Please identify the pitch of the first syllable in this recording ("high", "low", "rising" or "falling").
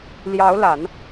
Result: rising